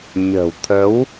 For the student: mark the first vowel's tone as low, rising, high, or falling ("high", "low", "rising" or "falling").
low